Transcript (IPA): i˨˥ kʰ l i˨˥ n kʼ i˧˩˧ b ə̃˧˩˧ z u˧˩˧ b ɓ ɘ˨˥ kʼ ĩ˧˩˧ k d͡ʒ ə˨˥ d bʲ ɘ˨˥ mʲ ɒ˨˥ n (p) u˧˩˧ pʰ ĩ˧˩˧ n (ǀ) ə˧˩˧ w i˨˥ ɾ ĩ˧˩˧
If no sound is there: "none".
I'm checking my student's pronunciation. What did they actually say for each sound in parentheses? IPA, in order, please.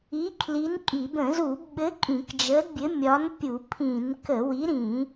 pʲ, k

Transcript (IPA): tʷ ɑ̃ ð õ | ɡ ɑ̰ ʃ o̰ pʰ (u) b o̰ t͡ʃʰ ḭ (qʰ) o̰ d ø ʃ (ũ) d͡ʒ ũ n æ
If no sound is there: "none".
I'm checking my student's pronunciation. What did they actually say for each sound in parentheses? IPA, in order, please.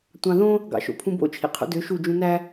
ũ, qʰ, u

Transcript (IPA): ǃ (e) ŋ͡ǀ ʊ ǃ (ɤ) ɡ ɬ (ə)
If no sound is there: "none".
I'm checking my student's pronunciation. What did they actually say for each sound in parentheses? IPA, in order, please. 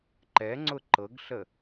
ɛ, ɤ, ə

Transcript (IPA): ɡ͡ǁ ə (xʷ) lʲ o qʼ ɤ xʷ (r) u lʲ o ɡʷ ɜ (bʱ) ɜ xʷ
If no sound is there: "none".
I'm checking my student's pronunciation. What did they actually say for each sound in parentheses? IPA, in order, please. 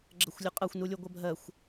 xʷ, n, bʱ

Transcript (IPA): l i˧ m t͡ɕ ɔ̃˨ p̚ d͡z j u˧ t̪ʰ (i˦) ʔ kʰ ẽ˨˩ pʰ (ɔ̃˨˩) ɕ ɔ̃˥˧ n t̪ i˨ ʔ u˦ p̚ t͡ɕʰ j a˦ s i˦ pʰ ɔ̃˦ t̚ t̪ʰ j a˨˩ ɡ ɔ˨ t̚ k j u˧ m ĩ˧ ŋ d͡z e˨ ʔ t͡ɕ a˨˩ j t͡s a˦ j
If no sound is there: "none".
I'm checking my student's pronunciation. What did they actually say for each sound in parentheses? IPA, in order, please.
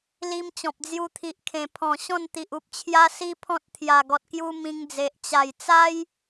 i˨, ɔ̃˨˩

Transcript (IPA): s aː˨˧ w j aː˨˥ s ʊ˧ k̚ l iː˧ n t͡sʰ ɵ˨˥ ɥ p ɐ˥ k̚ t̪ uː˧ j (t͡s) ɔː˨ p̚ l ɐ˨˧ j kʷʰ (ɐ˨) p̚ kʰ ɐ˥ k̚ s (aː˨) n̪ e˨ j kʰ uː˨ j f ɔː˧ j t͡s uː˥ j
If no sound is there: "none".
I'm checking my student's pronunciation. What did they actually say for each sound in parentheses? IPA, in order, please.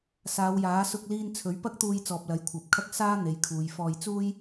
t͡s, ɐ˨, aː˥

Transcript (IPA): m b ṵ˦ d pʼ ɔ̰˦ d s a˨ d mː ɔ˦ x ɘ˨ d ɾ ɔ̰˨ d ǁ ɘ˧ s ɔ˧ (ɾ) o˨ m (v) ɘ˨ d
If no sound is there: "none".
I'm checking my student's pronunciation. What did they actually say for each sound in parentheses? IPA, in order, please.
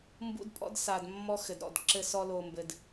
l, b

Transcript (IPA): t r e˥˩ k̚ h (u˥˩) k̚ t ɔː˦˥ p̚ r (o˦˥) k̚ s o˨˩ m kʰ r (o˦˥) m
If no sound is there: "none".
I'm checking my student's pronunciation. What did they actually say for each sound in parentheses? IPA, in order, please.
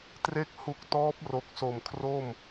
u˦˥, o˨˩, o˥˩

